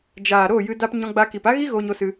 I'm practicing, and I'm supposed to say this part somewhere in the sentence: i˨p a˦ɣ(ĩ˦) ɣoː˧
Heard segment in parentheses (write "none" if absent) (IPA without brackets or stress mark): i˦